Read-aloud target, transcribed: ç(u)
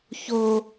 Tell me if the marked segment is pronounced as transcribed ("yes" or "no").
no